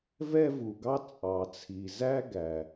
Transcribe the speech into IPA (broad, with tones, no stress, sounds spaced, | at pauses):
v ɛ˥ v u˩ ɡ ɑ˥ t͡sʼ ɑ˩ t͡sʰ i˩ z æ˥ ɡ æ˩